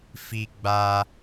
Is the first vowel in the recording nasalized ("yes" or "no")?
no